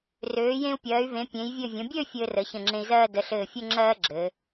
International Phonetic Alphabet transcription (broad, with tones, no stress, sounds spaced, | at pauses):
r øː˩˧ j ẽ˧ u̯ pʲ ɜː˩˧ y̯ v ẽ˩˧ pʲ ẽ˩˧ j vʲ ɘ˧˩ vʲ ə̃˩˧ bʲ ø˥˧ fʲ ɘː˧ r ə˩˧ ç ə̃˧˩ ŋ͡ǁ ẽ˧ i̯ z ɜː˥˧ d ə˩˧ ɬ ɘː˧˩ fʲ ɵ˥˧ ŋ͡ǁ ɜː˥ ɡ͡ǁ ɘː˩˧